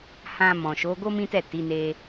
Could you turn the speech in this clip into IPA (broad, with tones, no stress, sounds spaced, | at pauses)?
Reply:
h ã˧ m ɔ̃˨ ʃ o˨˦ ɡ o˦ m ĩ˦ t ɛ˦˨ t i˨˦ n e˧